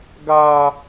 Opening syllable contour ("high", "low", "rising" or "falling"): high